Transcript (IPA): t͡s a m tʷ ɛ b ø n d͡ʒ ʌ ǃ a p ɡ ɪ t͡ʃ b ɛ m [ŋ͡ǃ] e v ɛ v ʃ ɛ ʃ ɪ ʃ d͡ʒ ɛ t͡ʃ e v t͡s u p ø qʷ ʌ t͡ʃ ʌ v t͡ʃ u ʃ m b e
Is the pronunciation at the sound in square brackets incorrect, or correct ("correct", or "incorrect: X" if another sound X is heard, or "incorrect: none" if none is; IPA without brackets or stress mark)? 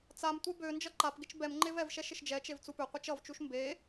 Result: correct